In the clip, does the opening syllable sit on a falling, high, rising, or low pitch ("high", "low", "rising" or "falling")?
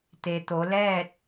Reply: low